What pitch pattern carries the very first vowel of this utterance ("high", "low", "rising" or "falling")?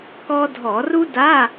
high